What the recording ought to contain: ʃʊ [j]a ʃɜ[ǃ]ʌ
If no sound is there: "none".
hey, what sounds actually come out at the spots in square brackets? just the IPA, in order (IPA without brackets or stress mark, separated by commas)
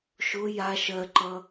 j, ǃ